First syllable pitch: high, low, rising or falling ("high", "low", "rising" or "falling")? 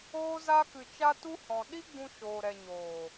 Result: high